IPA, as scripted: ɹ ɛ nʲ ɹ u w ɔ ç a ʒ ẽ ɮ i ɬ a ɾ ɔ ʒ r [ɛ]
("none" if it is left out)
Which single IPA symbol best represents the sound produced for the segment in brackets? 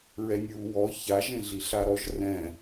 ɛ̃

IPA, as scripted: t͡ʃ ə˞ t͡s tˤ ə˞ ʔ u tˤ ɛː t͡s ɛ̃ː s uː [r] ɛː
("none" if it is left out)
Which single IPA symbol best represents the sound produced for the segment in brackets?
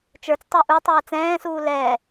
l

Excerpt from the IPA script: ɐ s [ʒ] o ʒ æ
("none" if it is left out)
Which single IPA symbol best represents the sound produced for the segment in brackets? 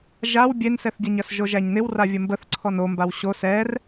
ʒ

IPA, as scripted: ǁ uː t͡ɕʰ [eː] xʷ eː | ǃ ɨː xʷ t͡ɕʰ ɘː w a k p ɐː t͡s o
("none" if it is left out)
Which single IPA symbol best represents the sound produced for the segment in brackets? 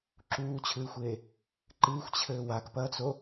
ɨː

